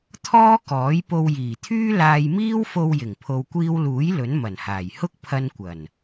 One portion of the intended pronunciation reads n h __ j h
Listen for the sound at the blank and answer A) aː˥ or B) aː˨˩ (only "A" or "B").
B